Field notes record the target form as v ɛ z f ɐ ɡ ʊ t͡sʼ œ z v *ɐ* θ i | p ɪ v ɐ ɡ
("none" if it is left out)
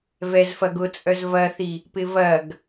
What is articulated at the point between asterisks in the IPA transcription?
ɐ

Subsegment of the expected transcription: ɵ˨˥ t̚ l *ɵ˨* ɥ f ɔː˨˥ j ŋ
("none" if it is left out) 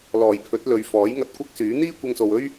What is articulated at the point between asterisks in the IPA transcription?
ɵ˨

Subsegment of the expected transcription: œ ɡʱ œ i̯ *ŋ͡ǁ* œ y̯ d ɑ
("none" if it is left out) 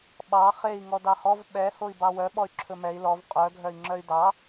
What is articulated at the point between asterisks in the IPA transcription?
ŋ͡ǁ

